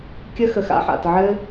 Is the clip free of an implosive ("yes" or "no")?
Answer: yes